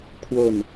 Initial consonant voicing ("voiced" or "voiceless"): voiceless